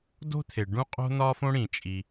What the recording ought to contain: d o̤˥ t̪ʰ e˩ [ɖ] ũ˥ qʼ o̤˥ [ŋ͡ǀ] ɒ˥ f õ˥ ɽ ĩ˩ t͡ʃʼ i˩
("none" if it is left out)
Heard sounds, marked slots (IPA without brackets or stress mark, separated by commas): ɖ, n̪